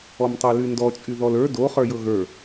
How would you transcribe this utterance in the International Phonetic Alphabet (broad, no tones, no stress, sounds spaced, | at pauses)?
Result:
ɔ m tˤ o l y n d ɔ t͡ʃʼ y ð ɔ l ə˞ d o χ ə˞ j ɤ ɣ ə˞